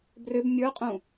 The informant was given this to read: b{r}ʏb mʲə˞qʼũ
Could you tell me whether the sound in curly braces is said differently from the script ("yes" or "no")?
no